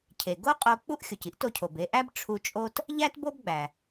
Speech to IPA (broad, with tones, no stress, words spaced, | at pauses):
cʰe˩ɡo˥qʼo˧ k͡pu˥ʔ xʲo˩ci˥ʔto˧cʰo˩b e˧ʔæ˥b ʈ͡ʂʰu˧t͡ʃʼo˥t | ʎæ˥tbo˥bɡ͡bæ˩